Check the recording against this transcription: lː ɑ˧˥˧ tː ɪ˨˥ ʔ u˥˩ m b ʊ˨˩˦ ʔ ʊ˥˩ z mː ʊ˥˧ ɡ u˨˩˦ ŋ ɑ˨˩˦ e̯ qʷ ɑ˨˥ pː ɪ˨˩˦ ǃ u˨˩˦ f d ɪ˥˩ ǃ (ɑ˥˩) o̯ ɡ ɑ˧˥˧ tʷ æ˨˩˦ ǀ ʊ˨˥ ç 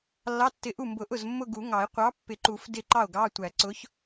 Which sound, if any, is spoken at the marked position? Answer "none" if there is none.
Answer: ɑ˥˩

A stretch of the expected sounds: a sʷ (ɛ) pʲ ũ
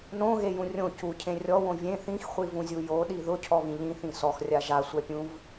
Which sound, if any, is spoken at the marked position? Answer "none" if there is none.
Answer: ɛ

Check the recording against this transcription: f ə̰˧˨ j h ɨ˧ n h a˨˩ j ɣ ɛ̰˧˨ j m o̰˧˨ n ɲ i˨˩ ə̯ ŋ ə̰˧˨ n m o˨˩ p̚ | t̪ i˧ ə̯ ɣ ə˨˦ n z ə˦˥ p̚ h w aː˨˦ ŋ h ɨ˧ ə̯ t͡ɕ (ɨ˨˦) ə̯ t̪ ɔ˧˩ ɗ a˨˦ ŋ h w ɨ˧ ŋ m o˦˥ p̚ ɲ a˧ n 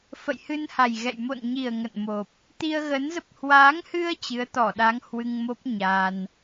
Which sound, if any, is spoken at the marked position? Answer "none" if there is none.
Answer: ɨ˨˦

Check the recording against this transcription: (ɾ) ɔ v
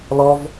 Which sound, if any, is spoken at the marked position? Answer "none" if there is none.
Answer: l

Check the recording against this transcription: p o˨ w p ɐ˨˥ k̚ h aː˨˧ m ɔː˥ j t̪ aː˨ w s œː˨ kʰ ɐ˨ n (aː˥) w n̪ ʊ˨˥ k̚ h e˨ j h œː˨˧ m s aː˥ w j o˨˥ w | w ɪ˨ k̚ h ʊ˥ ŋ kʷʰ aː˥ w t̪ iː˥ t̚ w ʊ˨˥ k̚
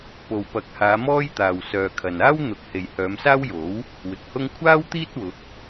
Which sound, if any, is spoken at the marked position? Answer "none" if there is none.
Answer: aː˥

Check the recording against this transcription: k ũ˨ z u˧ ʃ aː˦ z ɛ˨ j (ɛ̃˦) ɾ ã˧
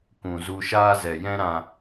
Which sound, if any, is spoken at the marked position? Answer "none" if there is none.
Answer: ɛ̃˦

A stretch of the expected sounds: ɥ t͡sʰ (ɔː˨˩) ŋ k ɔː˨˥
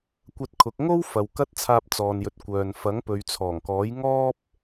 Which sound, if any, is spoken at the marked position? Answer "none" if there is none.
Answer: ɔː˨˩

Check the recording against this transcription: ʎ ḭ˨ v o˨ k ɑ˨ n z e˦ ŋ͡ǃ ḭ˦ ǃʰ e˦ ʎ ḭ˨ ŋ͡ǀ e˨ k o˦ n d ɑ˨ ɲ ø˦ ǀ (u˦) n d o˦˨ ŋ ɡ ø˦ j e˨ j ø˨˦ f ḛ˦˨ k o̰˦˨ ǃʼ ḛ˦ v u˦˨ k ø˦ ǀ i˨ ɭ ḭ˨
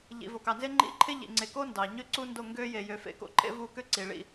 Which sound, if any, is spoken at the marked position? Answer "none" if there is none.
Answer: u˦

